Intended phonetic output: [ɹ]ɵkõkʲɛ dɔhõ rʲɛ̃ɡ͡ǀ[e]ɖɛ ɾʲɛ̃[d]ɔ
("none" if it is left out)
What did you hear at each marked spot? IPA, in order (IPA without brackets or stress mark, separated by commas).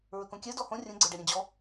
ɹ, e, d͡ʑ